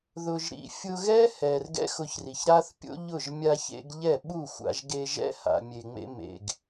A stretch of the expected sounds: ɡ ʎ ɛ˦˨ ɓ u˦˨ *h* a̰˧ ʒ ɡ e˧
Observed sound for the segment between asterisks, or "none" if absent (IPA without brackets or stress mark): xʷ